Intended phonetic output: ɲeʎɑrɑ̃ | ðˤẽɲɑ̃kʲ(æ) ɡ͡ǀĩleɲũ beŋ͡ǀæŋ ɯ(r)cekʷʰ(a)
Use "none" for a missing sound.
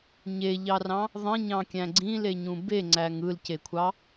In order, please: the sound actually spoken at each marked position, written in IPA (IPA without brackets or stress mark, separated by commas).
æ̃, l, ɑ